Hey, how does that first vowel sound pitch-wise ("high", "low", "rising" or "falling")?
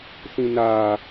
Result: low